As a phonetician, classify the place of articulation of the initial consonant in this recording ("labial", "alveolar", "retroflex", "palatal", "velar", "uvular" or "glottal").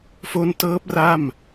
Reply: labial